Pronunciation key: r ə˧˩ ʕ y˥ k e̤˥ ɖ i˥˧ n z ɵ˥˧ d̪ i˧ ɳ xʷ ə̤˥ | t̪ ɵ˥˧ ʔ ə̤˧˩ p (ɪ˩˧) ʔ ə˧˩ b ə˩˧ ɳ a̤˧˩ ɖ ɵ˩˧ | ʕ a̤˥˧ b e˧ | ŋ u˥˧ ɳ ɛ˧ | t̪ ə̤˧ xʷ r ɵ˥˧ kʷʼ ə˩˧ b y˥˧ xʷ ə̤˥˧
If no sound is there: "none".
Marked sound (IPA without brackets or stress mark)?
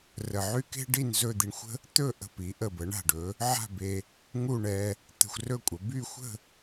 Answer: i˩˧